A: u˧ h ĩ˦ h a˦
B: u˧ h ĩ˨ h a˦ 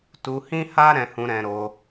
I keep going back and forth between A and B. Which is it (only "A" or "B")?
A